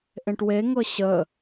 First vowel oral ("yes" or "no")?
no